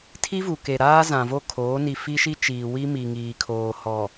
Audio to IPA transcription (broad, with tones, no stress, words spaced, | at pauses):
tʰi˦vu˨ke˨ ɾaː˦ zã˨vo˦kʰoː˨˦ ni˨ fi˦ʃi˦t͡ʃiː˨ wi˦ mi˨ŋiː˨kʰoː˨ hɔ˨